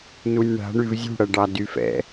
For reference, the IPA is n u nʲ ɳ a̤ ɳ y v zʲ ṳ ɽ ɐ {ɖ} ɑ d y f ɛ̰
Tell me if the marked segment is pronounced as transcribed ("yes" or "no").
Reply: yes